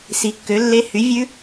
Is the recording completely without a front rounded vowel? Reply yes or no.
no